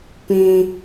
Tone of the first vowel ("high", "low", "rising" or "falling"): high